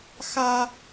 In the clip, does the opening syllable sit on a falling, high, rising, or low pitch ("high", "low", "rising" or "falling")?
high